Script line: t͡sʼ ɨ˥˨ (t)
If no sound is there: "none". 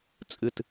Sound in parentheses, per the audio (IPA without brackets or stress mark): t